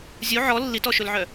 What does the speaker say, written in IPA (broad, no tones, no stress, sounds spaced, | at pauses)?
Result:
zʲ u ʕ ɔ lː i t ɔ ʃ ɵ l ʕ œ